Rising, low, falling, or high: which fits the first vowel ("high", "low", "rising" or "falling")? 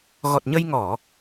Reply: low